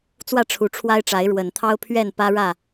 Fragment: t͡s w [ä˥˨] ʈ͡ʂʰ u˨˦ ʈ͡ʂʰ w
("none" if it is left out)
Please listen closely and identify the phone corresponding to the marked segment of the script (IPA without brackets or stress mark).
ä˥˨